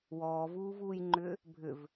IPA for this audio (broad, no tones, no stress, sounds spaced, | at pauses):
w ɔː v uː v uː j ŋ͡ǃ ʏː | bʱ ʏ v